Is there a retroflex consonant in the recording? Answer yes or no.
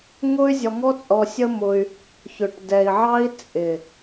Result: yes